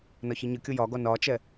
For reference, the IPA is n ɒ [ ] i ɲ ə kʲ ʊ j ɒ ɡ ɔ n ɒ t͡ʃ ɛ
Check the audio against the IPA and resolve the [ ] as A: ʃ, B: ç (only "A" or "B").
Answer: B